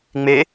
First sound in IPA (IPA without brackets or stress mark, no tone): ŋ͡m